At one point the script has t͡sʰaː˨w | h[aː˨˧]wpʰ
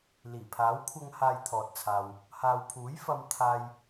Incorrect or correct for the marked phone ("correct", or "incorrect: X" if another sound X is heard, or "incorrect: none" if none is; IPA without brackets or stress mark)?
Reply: incorrect: aː˨